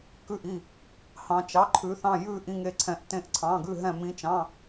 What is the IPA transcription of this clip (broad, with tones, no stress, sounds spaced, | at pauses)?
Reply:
k ʉ˥˩ ʔ i˥˩ | h ɑ̃˧˥ t͡ʃ ɑ˧˥˧ ǃʰ ʉ˧˥ θ ɑ̃˥˧ j ʉ˥˧ ʔ ĩ˥˧ ŋ e˥˩ ǀʰ ɛ̃˧˥ ʔ t ẽ˥˩ ʔ ǀʰ ɑ̃˧˥˧ ɡ ʉ˥˧ ɦ ɛ̃˥˧ m ĩ˧˥˧ t͡ʃ ɑ̃˧˥˧